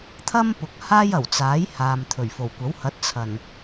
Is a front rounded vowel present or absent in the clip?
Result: absent